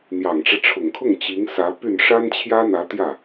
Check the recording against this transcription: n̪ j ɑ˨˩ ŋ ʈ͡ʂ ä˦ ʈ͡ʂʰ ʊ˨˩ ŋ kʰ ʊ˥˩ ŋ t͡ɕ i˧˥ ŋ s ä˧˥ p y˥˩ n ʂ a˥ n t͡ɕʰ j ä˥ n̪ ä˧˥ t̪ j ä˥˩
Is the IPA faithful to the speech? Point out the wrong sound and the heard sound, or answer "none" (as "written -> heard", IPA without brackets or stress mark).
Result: none